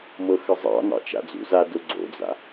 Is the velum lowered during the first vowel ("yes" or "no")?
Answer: no